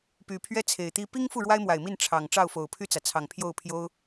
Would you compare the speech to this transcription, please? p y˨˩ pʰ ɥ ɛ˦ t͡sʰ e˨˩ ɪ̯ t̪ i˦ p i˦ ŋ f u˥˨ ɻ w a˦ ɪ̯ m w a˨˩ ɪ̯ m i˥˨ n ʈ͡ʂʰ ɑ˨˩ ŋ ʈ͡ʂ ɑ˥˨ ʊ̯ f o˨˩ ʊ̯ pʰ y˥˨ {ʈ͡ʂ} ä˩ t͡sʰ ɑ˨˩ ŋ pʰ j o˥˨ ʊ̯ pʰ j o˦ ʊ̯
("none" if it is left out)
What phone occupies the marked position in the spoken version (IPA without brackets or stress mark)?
t͡s